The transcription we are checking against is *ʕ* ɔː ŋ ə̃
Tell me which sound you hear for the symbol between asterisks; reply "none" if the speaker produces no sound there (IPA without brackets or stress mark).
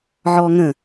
ʕ